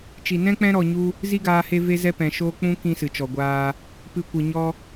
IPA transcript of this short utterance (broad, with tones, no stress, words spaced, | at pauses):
t͡ʃi˨nɛ̃˦k͡pɛ̃˦ ɾɔ˧ɲu˦ | zi˦ɡaː˧ he˦ve˦ zɛ˦pɛ̃˨ ʃoː˦ k͡pũ˦ kĩ˦sɨ˨t͡ʃɔ˨ɡʷaː˧ | pɨ˧kʷɨ˨ ɲɔ˧